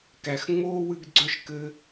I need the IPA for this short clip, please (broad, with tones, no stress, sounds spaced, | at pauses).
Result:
k æ˨ x ŋ͡m oː˥ w ɨ˥ ɡ ɡ͡ǀ œ˥ ʃ k ɘ˦